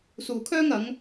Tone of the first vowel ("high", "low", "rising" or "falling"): low